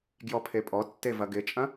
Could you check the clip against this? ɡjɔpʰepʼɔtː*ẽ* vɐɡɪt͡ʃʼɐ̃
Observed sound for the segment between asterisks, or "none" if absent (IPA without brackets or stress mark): e